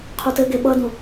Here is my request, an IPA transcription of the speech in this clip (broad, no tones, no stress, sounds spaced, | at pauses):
qʰ u t ɘ ɡ e ɓ ʌ d ũ